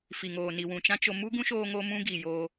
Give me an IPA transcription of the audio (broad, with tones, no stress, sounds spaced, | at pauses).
f i˨ ŋ oː˨ n i˨ w ũ˨ t͡ʃ ã˦ t͡ʃ o˧ m u˦ ɡ ũ˦ ʃ oː˧ ŋ o˦ m ũ˦ ɡ iː˨ j oː˧